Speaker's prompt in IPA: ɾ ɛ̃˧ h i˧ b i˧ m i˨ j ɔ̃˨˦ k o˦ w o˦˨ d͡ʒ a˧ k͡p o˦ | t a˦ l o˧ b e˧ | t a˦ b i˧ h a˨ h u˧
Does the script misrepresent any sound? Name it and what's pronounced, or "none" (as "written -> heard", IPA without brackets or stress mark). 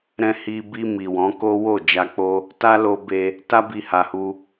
j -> w